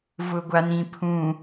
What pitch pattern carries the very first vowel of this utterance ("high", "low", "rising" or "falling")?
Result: low